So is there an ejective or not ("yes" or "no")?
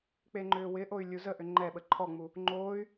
no